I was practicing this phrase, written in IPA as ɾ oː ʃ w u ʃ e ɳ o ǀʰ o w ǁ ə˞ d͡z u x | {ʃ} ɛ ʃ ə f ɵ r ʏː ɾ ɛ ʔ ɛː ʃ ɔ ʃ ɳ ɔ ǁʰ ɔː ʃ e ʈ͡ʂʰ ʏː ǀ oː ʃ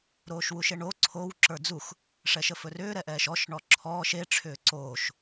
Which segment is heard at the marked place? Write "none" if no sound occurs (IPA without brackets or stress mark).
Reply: ʂ